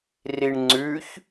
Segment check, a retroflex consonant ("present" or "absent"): present